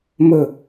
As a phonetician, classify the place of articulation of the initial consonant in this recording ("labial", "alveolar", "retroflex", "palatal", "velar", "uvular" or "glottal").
labial